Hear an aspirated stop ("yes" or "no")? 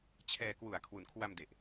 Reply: yes